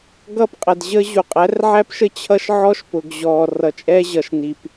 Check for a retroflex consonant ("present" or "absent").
absent